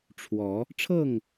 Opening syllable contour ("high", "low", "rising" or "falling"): rising